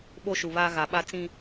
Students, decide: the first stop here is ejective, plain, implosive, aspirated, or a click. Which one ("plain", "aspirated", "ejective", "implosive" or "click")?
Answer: implosive